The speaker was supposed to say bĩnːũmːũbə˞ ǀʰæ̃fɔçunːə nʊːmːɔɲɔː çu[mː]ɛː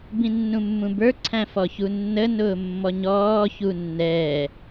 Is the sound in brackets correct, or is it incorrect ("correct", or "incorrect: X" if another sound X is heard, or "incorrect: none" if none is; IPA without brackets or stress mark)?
incorrect: nː